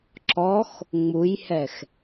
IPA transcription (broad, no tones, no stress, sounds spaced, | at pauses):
ǁ ɔ x | ŋ͡m u j h ɛ x